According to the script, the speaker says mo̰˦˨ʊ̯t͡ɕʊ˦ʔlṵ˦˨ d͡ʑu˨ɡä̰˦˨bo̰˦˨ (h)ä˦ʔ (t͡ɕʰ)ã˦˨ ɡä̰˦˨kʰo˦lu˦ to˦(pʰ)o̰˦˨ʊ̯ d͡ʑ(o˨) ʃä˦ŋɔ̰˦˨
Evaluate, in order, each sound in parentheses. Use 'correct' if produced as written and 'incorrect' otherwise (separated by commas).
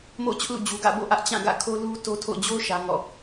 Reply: incorrect, incorrect, incorrect, incorrect